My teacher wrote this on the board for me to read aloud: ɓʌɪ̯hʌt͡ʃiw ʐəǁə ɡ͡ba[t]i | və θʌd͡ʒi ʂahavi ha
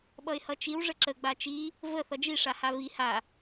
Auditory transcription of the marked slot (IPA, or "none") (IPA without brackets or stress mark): t͡ʃ